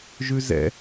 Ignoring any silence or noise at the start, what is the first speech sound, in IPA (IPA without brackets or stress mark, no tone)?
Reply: ʒ